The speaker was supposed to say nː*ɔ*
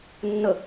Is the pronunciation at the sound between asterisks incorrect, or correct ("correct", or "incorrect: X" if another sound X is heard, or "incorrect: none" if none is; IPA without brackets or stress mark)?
incorrect: ə